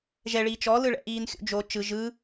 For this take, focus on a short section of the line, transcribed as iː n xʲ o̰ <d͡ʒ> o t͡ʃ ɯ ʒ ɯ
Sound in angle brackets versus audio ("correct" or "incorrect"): correct